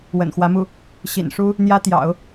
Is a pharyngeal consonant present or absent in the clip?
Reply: absent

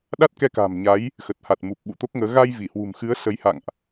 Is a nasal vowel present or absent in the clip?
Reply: absent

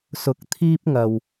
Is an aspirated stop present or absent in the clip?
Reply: present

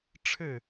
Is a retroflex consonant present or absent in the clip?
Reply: present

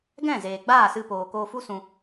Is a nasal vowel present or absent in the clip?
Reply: present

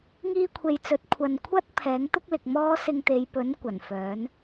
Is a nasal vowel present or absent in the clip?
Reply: absent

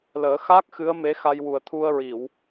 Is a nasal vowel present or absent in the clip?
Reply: absent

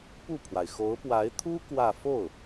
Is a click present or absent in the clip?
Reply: absent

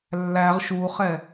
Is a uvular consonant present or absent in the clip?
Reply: present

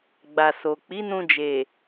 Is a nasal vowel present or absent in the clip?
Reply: present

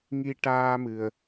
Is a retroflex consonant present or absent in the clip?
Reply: present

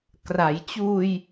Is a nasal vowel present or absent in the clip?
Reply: absent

